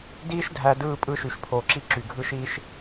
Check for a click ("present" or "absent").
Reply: present